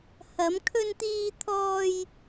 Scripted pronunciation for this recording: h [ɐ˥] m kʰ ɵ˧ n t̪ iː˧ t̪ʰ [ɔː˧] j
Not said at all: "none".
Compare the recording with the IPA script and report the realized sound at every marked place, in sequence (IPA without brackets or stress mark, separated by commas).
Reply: ɐ˨˧, ɔː˧